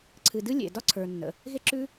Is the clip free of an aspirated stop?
no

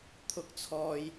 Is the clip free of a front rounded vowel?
yes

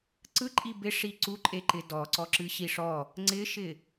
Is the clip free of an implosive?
yes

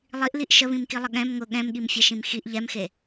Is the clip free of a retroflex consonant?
yes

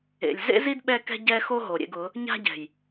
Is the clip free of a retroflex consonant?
yes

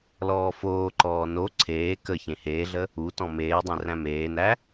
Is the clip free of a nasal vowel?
no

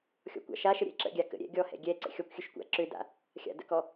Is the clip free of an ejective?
yes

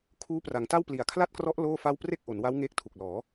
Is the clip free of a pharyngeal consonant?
yes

